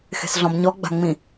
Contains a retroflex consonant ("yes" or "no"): no